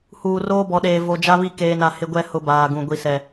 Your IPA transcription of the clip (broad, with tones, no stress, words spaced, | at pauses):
huː˨roː˦bɔ˨ɗeː˨ vo˨d͡ʒa˦ βi˦ keː˨na˨ hɪ˦ɡʷɛ˦ hʊ˦baː˨ɡũ˨ ɡʷi˨sɛ˨